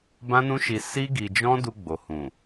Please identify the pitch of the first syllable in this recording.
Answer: high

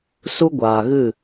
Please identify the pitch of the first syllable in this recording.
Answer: high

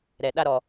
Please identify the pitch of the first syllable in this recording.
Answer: low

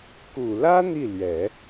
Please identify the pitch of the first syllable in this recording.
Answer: low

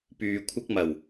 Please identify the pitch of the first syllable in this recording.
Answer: low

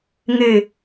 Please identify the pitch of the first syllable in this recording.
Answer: falling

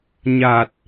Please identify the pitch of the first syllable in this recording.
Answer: low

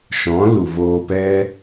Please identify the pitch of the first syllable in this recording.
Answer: rising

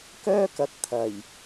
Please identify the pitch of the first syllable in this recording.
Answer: high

